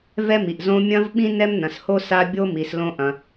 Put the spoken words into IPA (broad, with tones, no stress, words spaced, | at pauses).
vɛ˦mi˨ʔzõ˦ mʲɐ̃˦vɓĩ˦ nɛ˦mnɐ̃˨sho˦ sa˦bʲo˦mi˨s lõ˦ʔɐ̃˨